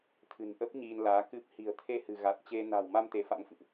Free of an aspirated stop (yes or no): no